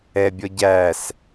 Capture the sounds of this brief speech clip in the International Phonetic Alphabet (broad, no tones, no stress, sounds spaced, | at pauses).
ɛ bʲ ɔ ɟ æ s